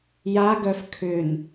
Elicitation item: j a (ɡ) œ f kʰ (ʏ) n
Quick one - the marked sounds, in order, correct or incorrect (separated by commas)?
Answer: correct, correct